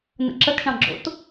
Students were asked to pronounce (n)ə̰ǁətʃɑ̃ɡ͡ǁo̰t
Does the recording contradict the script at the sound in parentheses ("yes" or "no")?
no